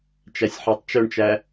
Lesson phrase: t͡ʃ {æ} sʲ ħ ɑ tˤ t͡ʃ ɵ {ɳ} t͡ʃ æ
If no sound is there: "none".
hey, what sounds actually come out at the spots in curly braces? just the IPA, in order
æ, ɳ

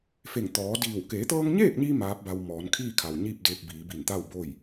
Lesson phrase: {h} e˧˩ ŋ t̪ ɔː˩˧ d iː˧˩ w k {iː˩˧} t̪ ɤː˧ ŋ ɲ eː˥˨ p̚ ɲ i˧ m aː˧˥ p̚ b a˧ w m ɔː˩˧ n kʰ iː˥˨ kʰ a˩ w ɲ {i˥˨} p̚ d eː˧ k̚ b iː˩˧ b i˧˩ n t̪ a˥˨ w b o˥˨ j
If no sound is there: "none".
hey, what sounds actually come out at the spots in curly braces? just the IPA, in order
f, eː˩˧, iː˥˨

